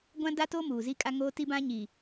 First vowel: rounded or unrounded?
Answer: unrounded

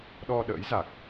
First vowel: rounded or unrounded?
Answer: rounded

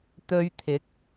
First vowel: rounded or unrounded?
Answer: rounded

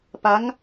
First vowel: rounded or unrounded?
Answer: unrounded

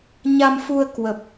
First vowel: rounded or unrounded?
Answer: unrounded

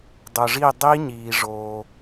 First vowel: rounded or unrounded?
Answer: rounded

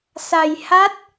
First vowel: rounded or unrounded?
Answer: unrounded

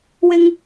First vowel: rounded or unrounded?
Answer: unrounded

